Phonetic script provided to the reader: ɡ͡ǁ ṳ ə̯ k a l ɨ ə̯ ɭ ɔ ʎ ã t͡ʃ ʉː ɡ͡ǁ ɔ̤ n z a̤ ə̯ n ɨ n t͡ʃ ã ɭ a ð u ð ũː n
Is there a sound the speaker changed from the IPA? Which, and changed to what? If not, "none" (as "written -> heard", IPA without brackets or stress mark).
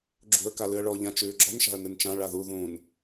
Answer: z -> ʃ